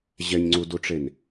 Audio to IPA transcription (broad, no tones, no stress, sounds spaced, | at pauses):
ʑ ɛ ɲ ŋ͡ǀ u d u ʈ͡ʂ e n